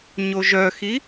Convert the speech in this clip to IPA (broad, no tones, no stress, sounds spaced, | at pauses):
ɲ o ʒ œ x i